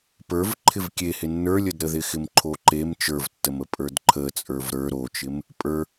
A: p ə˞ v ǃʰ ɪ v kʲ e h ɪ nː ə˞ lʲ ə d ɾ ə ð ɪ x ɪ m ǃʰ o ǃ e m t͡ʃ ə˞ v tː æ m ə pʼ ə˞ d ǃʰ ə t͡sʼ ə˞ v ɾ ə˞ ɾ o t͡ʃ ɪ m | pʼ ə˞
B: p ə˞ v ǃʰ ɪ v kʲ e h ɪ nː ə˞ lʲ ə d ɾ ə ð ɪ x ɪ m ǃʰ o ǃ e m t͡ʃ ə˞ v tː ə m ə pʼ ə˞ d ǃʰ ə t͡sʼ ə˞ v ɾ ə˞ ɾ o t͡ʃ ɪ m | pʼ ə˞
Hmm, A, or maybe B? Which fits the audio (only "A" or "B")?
B